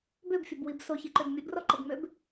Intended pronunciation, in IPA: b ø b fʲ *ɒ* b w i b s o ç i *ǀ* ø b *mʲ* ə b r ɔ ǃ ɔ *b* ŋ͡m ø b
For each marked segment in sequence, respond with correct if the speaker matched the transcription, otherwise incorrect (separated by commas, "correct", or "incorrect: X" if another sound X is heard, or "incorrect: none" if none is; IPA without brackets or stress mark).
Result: incorrect: ʌ, incorrect: ǃ, correct, correct